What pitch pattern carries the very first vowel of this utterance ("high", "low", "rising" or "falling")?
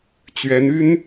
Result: rising